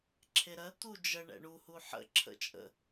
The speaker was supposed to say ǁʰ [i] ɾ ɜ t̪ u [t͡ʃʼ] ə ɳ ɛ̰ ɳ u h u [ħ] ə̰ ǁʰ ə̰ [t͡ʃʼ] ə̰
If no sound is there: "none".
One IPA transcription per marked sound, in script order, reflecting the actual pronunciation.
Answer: e, d͡ʒ, ħ, t͡ʃʼ

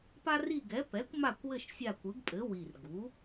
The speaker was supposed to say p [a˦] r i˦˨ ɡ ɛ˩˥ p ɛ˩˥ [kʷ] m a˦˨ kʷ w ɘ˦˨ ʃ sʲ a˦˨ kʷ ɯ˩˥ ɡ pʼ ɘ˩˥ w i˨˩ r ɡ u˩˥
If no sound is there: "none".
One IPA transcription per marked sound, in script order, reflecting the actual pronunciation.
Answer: a˦, kʷ

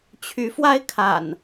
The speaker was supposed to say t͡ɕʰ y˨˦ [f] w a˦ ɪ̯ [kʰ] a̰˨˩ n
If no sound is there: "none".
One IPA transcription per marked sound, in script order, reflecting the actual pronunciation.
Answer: f, kʰ

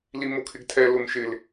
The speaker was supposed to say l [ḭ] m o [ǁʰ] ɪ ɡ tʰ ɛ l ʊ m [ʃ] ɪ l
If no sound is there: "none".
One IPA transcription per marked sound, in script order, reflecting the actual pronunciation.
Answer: i, kʰ, ʃ

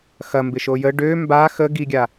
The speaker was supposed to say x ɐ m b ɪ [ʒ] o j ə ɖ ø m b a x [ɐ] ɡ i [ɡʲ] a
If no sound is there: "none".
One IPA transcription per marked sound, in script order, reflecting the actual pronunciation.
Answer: ʃ, ə, ɡʲ

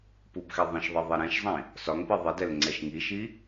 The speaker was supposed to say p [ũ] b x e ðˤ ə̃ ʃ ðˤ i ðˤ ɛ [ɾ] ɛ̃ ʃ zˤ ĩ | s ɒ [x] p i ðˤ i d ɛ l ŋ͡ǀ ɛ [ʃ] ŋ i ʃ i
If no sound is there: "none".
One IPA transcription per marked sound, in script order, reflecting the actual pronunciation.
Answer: u, ɾ, ŋ, ʃ

